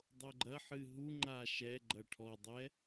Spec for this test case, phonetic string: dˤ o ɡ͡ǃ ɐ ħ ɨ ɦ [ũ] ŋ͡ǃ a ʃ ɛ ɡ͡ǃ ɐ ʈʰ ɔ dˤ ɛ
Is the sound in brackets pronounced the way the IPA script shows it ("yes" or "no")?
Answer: no